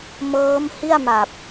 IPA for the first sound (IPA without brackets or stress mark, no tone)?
m